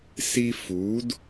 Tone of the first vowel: high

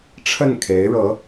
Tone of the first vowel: falling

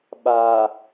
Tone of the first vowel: low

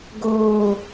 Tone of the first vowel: high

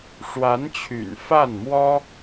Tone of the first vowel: rising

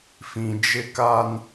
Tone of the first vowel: low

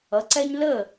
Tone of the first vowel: rising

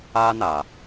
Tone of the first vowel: high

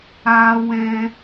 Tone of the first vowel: high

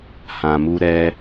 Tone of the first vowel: low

